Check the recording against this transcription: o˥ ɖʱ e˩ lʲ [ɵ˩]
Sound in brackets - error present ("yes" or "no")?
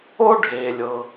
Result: yes